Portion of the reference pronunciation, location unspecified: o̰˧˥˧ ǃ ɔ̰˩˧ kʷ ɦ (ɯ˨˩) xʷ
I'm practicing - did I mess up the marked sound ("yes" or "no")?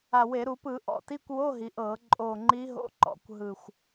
no